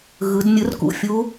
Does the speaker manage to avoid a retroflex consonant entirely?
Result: yes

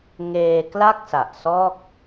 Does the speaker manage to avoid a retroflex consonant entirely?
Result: yes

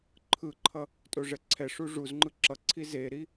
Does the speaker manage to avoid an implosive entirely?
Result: yes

